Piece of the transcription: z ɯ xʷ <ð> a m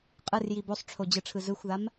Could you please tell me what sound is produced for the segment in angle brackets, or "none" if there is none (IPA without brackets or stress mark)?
ð